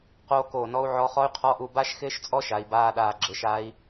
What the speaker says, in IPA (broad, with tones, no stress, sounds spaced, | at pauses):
q oː˦˥ k oː˦˨ n ɔ˦˥ u̯ ʕ ɔ˦˥ χ ɔ˦˥ y̯ qʰ ɔ˧˥˧ ʔ u˦˨ b a˦˥ ʃ x ɪː˦˥ ʃ t͡sʼ ɔ˦˥ ʃ a˨˦ i̯ b aː˧˥˧ ɗ aː˦˨ ɡ͡ǁ ɪ˨˦ ʃ a˦˥ i̯